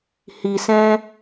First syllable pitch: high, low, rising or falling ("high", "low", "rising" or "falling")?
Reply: low